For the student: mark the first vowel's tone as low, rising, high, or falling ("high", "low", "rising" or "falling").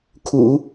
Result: low